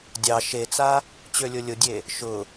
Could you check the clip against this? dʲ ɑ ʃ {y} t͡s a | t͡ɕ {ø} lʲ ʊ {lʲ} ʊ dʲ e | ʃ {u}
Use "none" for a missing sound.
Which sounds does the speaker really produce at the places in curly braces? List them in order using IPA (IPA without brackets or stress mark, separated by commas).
e, ø, lʲ, ʊ